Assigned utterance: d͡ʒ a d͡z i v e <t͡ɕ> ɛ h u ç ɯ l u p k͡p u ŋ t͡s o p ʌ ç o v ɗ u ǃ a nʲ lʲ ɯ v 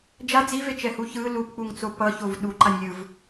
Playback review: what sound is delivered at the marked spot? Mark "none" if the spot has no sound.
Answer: t͡ʃ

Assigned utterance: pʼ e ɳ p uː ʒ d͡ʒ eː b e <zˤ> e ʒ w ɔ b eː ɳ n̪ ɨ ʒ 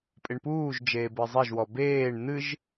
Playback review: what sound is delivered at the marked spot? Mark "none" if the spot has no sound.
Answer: zˤ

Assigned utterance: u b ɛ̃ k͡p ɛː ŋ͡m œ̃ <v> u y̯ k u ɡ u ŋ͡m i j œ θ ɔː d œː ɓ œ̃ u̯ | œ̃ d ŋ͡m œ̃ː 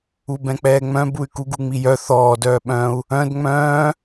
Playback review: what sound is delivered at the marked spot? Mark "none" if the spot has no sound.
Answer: b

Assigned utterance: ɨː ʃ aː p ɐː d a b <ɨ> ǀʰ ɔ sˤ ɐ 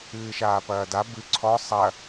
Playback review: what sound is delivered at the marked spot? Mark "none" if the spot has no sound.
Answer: ɨ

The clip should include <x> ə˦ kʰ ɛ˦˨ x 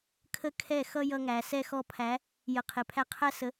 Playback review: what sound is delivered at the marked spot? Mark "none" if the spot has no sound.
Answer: kʰ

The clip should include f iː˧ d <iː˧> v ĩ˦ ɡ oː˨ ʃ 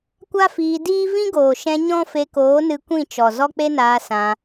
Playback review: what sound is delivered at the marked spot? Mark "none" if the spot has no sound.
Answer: iː˦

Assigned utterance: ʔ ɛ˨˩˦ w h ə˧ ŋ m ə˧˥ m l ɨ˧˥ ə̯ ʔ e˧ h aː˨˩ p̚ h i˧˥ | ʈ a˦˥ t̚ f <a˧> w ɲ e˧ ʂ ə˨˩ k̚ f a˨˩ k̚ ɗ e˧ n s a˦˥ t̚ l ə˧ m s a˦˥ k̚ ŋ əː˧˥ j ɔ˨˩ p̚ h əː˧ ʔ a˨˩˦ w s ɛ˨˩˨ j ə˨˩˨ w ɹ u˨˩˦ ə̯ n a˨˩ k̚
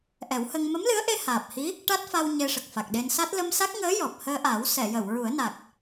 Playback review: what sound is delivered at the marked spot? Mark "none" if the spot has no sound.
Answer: a˧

